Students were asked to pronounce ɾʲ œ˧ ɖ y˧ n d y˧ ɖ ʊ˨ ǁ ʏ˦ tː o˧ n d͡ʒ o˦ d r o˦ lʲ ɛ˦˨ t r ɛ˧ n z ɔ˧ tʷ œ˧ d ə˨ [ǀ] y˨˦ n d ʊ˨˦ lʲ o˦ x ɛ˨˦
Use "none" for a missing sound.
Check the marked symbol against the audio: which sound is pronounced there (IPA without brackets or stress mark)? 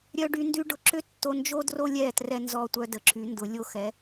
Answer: ǁ